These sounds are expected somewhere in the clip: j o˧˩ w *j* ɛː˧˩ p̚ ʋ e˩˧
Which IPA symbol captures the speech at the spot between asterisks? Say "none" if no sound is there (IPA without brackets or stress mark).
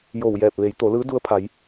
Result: j